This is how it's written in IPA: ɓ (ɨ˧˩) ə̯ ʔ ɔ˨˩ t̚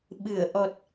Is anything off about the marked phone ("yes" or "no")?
no